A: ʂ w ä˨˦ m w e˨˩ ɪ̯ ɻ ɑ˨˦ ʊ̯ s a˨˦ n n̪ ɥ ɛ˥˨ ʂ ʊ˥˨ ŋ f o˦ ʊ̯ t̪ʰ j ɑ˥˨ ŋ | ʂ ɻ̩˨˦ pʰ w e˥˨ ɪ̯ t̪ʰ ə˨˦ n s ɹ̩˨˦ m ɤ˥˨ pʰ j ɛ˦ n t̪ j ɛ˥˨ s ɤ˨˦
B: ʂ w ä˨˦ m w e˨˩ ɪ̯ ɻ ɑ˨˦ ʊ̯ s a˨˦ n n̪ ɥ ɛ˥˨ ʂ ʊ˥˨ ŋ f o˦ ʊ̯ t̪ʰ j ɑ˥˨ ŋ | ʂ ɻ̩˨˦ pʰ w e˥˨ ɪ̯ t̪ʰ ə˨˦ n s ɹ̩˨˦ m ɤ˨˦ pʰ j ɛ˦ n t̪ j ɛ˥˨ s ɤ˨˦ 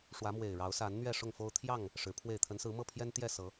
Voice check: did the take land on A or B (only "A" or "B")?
A